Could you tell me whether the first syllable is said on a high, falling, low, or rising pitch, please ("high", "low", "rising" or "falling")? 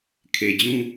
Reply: low